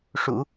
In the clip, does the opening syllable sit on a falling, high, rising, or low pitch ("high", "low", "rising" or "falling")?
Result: low